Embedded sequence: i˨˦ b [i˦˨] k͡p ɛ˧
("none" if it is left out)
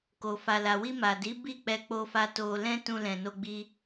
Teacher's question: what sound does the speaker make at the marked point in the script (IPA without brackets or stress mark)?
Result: i˦˨